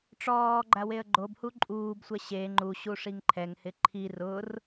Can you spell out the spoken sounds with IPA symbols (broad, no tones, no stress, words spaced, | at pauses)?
ʈ͡ʂɔːɡ͡ǃa weə̯ɡ͡ǃobhu ǃʼuːbsʷɛ ɕe ŋ͡ǃuɕu ʂiŋǃʰɛŋhɪ ǃʰi rʊr